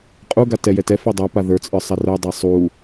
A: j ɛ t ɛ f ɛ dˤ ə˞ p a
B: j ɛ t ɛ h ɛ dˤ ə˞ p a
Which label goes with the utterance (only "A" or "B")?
A